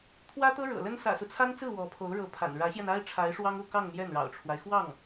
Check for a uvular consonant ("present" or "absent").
absent